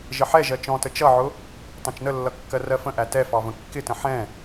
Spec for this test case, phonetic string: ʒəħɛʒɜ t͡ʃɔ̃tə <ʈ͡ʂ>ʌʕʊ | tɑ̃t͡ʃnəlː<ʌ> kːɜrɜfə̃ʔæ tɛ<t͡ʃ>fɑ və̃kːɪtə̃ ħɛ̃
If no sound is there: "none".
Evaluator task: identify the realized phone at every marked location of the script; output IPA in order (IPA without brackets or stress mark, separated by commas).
t͡ʃ, ʌ, none